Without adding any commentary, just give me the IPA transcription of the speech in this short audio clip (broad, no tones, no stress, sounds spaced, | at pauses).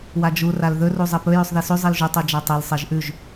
w a d͡ʒ u r a l ð ɵ r u zˤ e p ɵ j ʉ sˤ ð i s ʉ zˤ i l ʒ u tˤ u d͡ʒ a tˤ e l sˤ e ʒ ʔ ʉ ʒ